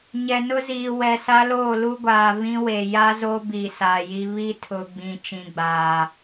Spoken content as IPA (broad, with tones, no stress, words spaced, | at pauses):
ɲɛ˨nʊ˦ziː˨ wɛ˨sa˦loː˦˨ lu˦ɡʷaː˨vĩ˦we˨ ja˦zo˦bi˨ saː˨ji˦ βi˦tʰʊ˨ɡ͡bĩ˨ t͡ʃĩ˨ɡ͡baː˨